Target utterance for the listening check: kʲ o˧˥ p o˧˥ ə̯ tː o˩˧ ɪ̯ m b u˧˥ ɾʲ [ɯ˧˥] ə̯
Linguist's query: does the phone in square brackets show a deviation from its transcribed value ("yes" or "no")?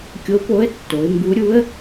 yes